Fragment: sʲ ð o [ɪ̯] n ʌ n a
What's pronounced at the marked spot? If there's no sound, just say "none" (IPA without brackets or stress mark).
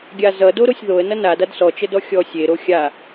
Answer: ə̯